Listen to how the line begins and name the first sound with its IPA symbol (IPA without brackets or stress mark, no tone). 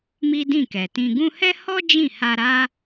m